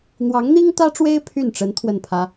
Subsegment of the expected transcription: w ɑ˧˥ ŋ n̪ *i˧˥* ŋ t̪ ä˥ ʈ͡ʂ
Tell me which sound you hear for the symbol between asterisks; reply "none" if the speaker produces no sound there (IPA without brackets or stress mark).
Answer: i˥